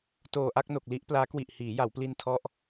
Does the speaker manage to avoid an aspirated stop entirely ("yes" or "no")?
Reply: no